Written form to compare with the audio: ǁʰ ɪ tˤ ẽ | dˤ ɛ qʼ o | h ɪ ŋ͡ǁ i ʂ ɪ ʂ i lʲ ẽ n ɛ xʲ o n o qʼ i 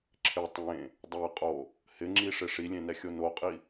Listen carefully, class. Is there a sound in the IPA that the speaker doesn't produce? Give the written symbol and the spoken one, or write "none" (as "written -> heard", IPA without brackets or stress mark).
none